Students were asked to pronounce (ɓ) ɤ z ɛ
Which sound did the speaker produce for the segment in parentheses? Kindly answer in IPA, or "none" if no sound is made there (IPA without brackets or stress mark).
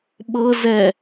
ɓ